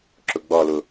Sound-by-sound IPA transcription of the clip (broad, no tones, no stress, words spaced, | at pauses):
ǁʊɡ͡bɒlʊ